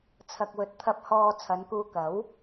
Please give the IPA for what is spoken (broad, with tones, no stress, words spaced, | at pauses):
t͡sʰɐ˨k̚wɵ˨t̚t̪ʰɐ˧p̚ hɔː˧ t͡sʰɐ˨˧nkuː˧ kɐ˨˥w